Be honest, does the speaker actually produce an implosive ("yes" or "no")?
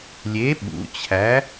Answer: yes